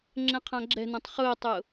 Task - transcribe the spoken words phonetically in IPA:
ŋ͡ǁɛ̃qʰãɡ͡ǁɛ̤nõtˤ χʊːtˤʊː

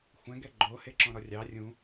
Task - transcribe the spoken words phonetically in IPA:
xʷɛ̃ ɡɛɡ͡ǃo heǁɔ̃ɾɔrʲɑ rʲũ

